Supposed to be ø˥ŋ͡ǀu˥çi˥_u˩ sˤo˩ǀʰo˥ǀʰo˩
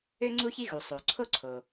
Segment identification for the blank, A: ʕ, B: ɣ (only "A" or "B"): B